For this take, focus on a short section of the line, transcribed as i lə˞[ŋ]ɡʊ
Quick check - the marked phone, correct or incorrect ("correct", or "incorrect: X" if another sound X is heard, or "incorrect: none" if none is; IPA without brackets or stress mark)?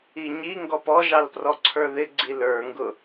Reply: correct